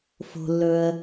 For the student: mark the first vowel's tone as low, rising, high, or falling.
low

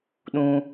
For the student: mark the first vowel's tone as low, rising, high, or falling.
high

